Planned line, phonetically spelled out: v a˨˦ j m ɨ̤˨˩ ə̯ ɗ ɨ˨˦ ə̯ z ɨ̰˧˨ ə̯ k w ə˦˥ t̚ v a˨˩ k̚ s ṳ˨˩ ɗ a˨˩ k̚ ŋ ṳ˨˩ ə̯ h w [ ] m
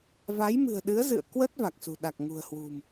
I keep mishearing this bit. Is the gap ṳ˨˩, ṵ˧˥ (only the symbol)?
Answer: ṳ˨˩